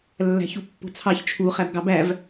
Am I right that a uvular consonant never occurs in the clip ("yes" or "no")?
no